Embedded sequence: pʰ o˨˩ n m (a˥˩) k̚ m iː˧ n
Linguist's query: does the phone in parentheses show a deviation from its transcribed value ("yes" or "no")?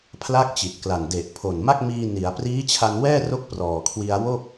no